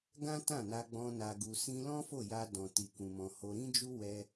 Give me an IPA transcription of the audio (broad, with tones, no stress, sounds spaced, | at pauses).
ɡ ã˦ t ã˦˨ n a˧ ɡ͡b ɔ̃˧ n a˧ ɡ u˧ s ĩ˦ l ɔ̃˦ f o˦˨ j a˧ d ɔ̃˨ t i˨ k ũ˨ m ɔ̃˨ h o˧ ɾ ĩ˦ d͡ʒ u˦ w ɛ˧